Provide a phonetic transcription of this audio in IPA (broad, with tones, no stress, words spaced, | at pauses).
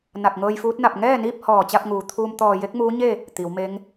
na˧˩k̚ŋɤː˧jfuː˧˥t̚na˧˩p̚ ŋɛː˥˨niː˥˨p̚hɔː˧˩ t͡ɕa˥˨p̚ŋuː˩ t̪ʰuː˧mt̪ɔː˧˩ je˧˥k̚muː˧˥ɲe˥˨ | t̪i˩˧wme˧˥ŋ